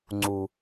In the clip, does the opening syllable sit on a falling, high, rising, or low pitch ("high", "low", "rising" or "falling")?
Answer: low